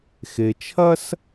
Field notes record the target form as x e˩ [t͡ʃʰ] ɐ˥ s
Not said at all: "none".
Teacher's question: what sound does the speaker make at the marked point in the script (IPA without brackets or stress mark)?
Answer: t͡ʃʰ